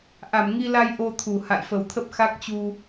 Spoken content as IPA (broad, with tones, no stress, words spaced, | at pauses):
ʔa˧˩mŋi˧la˧j ʔo˧t̪ʰu˨˩ ha̰˧˨jfə˨˩wt̪ʰə˦˥p̚ xa˦˥k̚t͡ɕu˧